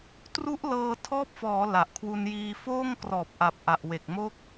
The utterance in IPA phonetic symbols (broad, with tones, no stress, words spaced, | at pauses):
tru˦˥ʔlɤː˧tʰɔː˦˥p̚fɔː˩˦ la˨˩ʔkʰwu˧njiː˧foː˥˩ŋ krɔː˨˩p̚ʔa˨˩p̚ ʔa˨˩ʔwe˨˩k̚mo˦˥k̚